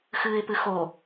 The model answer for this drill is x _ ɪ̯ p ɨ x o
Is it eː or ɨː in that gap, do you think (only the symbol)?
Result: ɨː